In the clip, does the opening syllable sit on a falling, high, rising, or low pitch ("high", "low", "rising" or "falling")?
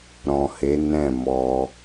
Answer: low